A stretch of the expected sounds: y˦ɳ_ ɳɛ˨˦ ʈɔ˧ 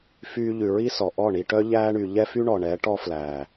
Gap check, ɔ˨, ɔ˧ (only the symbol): ɔ˨